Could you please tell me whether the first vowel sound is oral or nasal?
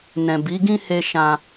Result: nasal